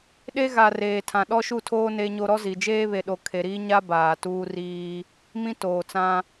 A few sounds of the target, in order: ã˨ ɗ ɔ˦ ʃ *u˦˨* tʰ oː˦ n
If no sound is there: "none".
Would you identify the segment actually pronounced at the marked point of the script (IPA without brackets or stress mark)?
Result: u˦˨